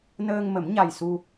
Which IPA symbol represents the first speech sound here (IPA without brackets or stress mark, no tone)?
n